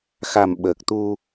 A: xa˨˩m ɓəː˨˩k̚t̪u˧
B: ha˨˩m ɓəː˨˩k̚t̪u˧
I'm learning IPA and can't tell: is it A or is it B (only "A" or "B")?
A